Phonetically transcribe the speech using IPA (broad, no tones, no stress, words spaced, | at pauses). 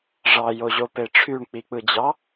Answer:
ʐɑjoʑope ʈ͡ʂʰyɳk͡pik͡pɯd͡ʑɑ